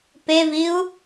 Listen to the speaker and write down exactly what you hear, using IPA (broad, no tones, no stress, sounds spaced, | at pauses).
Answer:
p e v i u̯